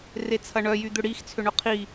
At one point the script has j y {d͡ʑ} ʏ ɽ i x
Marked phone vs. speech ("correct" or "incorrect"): incorrect